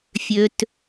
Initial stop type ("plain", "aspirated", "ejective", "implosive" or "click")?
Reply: plain